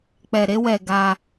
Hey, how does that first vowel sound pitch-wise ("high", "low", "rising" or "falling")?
low